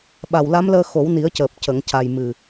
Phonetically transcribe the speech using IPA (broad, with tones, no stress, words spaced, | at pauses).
ɓa˨˩wla˧˥mləː˧ xo˨˩˦wni˨˩˦ə̯cəː˨˩p̚ cə˨˩˨ŋca˨˩j mɨ˨˩